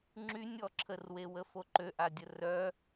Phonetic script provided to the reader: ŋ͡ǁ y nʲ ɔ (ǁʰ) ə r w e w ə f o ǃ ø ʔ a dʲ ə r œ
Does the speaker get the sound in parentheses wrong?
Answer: no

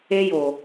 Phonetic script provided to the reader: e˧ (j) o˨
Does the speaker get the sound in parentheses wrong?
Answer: no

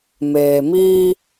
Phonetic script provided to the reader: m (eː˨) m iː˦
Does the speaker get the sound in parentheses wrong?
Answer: no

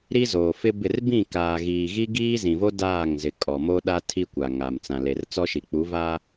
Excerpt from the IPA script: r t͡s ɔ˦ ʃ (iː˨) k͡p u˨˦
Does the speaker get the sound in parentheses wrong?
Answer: yes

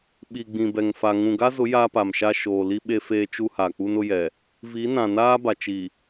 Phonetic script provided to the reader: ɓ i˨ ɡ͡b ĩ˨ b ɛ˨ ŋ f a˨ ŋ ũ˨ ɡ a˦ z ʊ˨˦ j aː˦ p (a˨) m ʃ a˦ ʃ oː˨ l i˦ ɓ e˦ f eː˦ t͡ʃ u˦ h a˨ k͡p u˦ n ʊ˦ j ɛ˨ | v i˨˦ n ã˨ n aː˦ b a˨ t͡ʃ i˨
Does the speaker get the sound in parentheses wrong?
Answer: no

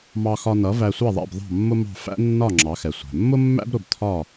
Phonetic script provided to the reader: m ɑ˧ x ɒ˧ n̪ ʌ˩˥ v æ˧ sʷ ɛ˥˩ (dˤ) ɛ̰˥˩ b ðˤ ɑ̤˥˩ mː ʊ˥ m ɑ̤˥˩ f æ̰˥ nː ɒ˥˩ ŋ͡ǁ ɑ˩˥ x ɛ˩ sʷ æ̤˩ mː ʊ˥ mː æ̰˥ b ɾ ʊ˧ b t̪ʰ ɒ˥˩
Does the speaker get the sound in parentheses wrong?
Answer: yes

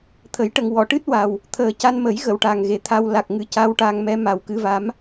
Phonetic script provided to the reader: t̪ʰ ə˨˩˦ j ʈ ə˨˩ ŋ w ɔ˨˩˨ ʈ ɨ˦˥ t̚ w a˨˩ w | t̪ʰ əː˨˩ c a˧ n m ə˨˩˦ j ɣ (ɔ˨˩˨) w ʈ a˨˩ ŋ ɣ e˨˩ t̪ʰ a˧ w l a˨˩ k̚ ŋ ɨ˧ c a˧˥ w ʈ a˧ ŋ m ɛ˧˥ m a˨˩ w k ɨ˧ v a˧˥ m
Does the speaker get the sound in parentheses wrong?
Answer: yes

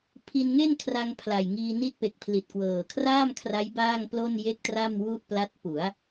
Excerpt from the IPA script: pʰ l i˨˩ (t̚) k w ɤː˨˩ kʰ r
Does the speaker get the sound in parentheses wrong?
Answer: no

